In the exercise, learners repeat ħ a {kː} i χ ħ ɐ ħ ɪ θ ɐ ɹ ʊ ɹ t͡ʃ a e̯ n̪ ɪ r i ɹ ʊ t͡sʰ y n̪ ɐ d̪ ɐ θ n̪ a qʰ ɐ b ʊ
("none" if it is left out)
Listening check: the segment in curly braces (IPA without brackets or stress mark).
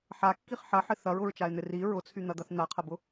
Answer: kː